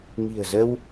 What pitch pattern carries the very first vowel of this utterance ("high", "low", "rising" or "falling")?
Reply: low